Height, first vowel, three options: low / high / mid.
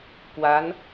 low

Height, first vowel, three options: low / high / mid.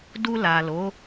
high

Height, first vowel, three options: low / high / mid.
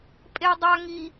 mid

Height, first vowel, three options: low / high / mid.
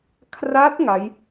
low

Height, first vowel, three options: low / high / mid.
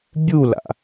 high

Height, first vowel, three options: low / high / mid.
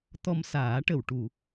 mid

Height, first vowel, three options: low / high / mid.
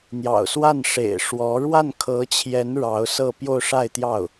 low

